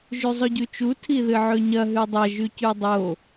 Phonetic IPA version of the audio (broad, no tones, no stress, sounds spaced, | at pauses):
ʒ ʉ zˤ ɵ ɟ ʉ t͡ʃ u tʰ i ð ɨ ʕ ɵ ɲ ɐ ɦ ʉ dˤ ɐ ʒ ʉ c ʉ dˤ o